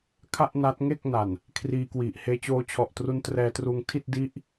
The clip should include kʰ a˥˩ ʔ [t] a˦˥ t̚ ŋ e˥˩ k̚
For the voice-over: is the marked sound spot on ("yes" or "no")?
no